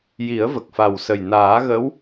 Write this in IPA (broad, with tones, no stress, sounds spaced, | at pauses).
j i˨˩˦ ə̯ v ə˨˩ k̚ f a˨˩ w s ə˨˩ j n aː˨˩˦ ɣ ə˧˥ w